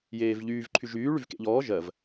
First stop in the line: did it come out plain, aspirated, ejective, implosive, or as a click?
click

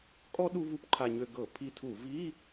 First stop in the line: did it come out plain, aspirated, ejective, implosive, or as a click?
ejective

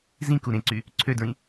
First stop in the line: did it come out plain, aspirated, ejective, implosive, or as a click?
plain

